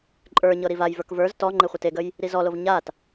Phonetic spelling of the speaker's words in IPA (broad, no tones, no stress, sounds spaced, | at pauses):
ǃʼ ə˞ ɲ ɤ ɾ i v a j v ə˞ k v ə˞ z t ɔ ŋ͡ǃ e χʷ ɪ t e ɡ ə j | ɾ i z ɔ l o v ɲ a t